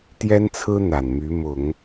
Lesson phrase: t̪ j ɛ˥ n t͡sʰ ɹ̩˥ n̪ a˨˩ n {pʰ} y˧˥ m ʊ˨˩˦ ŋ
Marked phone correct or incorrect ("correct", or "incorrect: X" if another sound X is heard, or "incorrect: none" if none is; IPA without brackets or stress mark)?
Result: incorrect: m